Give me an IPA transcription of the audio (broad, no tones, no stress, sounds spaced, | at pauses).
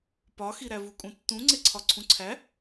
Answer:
p ɒ x i ɾ æ v u kʼ ũ tː ũ ŋ͡ǀ e ǀʰ ɒ ǀʰ ũ ǀʰ æ